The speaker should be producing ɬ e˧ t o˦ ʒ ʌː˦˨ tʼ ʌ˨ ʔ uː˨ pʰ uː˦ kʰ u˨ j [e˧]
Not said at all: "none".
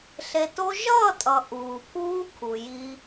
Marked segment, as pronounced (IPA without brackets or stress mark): i˧